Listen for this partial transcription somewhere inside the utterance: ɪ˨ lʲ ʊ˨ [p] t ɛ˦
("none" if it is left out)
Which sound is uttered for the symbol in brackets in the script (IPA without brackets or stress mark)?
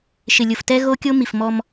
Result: f